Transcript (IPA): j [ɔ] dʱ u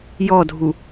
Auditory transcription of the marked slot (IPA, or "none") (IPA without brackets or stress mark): ɔ